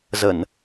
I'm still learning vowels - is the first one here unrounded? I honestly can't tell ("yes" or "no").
yes